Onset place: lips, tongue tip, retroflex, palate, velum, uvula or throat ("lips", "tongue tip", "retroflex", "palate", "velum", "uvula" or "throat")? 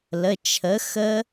tongue tip